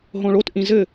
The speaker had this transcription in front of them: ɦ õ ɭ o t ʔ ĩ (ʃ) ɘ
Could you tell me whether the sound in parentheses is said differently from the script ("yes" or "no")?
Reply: yes